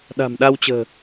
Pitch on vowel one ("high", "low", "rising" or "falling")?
low